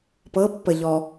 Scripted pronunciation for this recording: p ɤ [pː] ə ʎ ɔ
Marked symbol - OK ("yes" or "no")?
yes